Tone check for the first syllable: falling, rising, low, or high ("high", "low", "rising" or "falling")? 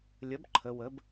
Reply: rising